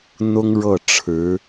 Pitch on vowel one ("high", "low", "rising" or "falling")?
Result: high